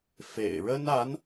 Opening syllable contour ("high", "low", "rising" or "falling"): low